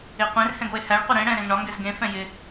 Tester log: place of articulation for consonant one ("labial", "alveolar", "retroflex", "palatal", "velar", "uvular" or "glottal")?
uvular